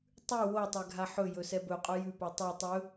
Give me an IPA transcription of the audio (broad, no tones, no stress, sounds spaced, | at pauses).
tˤ ʉ w o tˤ ɛ ɡʱ a ħ ɵ j ɵ s ɛ b ɵ qʼ ɵ j ʉ p o tˤ ɛ tˤ ɵ